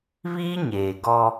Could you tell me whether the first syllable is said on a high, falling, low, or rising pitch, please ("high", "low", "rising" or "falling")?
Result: high